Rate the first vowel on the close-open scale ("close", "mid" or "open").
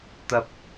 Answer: open